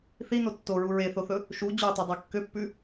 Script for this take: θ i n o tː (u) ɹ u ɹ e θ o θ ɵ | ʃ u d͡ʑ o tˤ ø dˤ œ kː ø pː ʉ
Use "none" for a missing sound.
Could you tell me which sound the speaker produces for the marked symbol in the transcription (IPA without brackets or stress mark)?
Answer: o